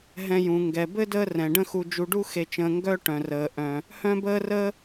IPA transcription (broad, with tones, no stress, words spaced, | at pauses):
ɦɛ̃˨jũ˩ŋɡɛ˩ bɘ˥dəː˦ rɛ̃˩ɖə̃˦xu˨ d͡ʒu˨ɖu˥xe˨t͡ʃə̃ː˨ ŋɡœ˦ʈœ̃˩rəː˩ ʔœ̃˩ | hœ̃˦bəː˦rəː˦